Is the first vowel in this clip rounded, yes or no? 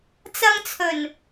no